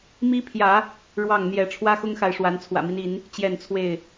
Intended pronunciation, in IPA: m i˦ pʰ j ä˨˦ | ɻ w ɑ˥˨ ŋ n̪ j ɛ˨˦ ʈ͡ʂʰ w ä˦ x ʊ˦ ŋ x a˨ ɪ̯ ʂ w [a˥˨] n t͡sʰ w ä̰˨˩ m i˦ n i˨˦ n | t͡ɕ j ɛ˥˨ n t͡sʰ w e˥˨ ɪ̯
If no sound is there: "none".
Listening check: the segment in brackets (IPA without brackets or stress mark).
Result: a˨˦